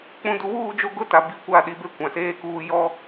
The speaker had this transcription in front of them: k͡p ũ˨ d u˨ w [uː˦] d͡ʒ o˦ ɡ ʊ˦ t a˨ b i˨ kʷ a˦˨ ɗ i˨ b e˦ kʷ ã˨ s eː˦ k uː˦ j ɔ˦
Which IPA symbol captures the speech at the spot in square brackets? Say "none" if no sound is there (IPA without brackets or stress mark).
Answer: uː˦˨